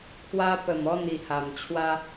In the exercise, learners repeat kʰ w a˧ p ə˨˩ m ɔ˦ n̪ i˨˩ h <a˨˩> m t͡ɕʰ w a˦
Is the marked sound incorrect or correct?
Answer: correct